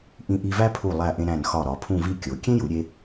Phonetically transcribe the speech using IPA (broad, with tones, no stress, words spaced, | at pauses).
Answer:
ʔĩ˧ʔi˧væ˥ pʰu˧˩ lˠæ˧˩ʔẽ˧ ɾæ̃˧˩nxɒ˧˩ ɾɒ˩˧pʰũ˥˧vi˥˧ kʲo˩˧ kʲẽ˥ju˩˧ɾʲe˧